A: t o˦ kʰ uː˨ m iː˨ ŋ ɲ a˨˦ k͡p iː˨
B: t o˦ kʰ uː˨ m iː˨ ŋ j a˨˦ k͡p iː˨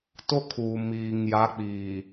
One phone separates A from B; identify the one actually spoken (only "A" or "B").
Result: B